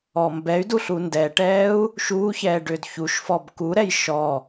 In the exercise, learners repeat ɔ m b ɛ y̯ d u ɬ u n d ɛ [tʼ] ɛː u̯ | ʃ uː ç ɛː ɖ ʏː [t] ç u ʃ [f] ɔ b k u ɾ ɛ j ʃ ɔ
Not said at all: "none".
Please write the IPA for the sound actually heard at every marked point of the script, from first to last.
ʈ, d, f

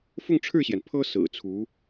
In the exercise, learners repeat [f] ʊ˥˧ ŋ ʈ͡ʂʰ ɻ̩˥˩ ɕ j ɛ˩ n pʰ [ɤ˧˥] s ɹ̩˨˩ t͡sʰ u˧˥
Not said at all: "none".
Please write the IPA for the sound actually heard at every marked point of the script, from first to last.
f, ɤ˥

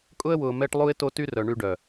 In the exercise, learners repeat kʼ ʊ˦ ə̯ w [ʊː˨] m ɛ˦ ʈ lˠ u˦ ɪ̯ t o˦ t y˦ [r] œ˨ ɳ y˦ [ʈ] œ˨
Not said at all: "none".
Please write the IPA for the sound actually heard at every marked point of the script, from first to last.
ʊː˨, r, ɖ

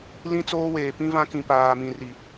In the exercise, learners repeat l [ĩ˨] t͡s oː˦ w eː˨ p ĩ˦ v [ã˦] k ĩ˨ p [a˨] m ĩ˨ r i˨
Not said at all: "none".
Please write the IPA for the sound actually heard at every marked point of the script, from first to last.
ĩ˦, ã˦, aː˨

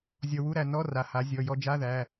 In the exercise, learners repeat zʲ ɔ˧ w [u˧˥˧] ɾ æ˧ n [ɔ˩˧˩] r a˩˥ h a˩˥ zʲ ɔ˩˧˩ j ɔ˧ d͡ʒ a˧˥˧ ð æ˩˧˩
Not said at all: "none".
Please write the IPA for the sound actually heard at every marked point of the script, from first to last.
u˧˥˧, ɔ˧˥˧

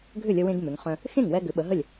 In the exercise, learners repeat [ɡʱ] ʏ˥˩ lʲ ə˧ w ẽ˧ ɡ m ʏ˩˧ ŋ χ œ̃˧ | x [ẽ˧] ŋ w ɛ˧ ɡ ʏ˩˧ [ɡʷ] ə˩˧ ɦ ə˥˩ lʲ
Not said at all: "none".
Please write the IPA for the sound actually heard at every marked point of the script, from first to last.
ɡʱ, ẽ˥˩, ɓ

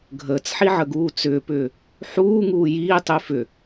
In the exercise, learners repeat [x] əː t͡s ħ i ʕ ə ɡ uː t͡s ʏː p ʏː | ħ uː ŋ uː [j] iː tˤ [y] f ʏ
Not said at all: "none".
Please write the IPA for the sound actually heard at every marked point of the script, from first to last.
ɡʱ, j, y

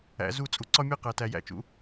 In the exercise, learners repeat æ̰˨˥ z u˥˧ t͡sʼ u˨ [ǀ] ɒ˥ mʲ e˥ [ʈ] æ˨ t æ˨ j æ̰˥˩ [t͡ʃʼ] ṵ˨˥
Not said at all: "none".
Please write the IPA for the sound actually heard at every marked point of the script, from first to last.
ǀ, q, t͡ʃ

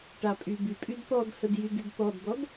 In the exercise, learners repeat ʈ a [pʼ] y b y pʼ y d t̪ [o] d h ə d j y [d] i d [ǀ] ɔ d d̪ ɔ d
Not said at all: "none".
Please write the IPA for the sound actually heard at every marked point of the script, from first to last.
pʼ, ɔ, d, t̪

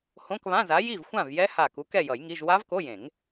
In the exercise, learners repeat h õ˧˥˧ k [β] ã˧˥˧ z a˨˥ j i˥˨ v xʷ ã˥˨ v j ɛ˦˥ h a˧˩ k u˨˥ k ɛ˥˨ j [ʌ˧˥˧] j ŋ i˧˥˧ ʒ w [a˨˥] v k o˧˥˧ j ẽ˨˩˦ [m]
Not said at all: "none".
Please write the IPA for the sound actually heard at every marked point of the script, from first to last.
β, ʌ˨˩˦, a˦˥, ŋ

